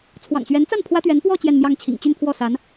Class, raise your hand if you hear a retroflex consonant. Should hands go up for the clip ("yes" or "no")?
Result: no